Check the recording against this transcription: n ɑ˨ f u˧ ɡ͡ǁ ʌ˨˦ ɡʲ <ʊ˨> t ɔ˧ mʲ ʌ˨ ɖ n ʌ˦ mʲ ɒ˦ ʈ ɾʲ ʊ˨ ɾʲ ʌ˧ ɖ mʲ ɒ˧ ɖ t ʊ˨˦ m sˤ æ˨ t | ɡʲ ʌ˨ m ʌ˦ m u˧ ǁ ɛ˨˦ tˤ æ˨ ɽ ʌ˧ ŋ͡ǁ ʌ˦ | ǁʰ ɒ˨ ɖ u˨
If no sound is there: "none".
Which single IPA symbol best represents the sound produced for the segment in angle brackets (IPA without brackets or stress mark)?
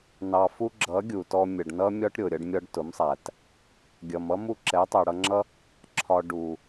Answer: u˨